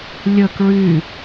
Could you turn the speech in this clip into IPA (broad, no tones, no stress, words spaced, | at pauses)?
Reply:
lʲə kɹy